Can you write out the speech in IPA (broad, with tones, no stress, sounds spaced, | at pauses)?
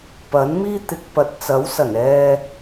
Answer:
p ɐ˨˥ n m iː˥ t̪ ɪ˨˥ k̚ p ɐ˨ t̚ t͡s ɐ˨˥ w s ɐ˨˩ n ɛː˧